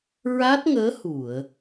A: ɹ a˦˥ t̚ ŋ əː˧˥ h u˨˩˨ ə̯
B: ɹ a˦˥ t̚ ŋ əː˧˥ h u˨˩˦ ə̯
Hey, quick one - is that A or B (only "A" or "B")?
A